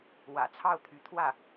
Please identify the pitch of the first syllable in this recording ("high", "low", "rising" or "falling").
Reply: low